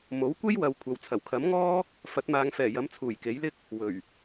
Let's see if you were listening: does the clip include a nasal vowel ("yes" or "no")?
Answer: no